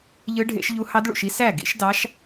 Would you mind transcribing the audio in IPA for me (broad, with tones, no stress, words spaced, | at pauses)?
ʎɯ˦˥ɖʱḛ˦˥ʃʎu˦˥ hɑ˦˥dɭṵ˥˨ʃi˦˥ sæ˥˨ɡḭ˦˥ʃ dɑ˦˥ʃ